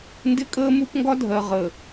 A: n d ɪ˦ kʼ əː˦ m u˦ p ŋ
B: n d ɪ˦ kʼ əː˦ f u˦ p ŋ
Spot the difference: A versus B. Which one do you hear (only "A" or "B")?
A